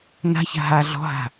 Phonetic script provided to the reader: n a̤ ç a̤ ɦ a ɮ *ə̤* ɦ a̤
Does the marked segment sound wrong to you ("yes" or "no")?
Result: yes